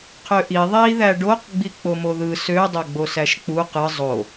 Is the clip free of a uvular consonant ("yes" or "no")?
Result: no